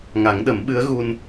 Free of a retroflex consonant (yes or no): yes